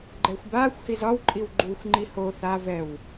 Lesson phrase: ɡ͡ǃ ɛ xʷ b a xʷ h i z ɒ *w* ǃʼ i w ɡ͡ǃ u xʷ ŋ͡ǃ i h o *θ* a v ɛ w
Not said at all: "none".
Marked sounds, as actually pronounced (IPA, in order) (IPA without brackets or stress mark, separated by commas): w, θ